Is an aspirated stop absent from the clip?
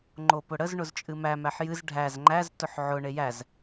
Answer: yes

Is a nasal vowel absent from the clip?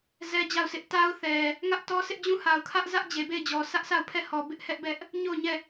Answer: no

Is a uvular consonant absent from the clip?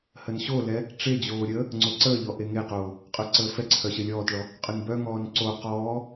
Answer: no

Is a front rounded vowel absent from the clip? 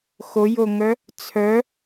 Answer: no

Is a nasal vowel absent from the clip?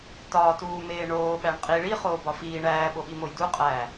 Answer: yes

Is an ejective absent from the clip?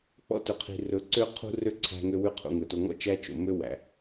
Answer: yes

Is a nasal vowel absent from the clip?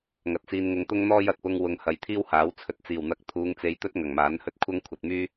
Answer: yes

